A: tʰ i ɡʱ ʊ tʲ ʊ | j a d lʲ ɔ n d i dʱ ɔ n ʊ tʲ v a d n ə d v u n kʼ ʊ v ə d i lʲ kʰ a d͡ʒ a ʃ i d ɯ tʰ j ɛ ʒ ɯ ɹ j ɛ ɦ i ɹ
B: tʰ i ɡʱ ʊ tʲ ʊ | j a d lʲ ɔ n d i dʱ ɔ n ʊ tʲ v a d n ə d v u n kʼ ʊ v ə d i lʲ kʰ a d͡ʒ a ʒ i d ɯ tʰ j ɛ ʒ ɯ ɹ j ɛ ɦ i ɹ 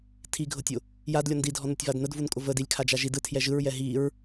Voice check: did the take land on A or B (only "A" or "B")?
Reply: B